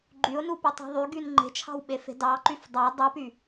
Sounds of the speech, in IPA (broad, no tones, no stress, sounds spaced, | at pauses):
ɡ͡ǃ y ʊ̯ n u p y tˤ ɑ̤ ðˤ y ɡ y n ŋ͡ǃ e̤ t͡ʃʰ ɑ̤ w ɓ e f e̤ d ɑ ǃ y f dˤ ɑ dˤ u p y